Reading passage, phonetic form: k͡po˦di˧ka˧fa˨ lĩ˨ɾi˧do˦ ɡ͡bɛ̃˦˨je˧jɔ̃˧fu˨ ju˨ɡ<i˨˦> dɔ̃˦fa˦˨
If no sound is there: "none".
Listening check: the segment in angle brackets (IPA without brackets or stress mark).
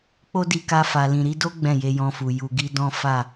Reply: i˧